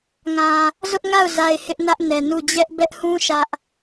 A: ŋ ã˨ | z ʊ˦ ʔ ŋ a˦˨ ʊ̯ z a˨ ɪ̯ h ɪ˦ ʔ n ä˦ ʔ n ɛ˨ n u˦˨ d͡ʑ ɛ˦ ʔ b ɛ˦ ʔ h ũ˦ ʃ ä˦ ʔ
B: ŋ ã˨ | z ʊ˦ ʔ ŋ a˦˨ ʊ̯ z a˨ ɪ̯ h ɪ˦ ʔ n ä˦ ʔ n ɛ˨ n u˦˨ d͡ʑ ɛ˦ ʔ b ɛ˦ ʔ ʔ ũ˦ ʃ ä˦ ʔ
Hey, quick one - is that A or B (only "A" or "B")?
A